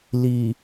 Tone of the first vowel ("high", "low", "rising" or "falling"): low